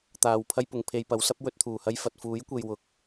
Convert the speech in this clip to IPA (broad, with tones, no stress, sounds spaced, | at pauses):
t̪ aː˨˩ w pʰ ɐ˧ j p ʊ˨˩ ŋ pʰ e˨ j p ɐ˨˥ w s ɐ˥ p̚ w ɵ˧ t̚ t̪ʰ uː˨˩ h ɐ˧ j f ɐ˨ t̚ f uː˨˥ j kʷ e˧ j w ʊ˨˥ k̚